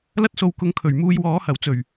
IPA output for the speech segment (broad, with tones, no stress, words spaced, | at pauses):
lɐ˧t̚so˨wkʊ˨ŋ kʰɵ˨˩ɥmuː˨j wɔː˨˧hɐ˨˩w t͡sɵ˨˩ɥ